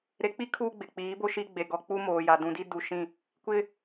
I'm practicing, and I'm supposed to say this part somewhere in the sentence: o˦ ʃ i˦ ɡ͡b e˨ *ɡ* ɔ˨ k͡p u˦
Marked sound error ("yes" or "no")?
no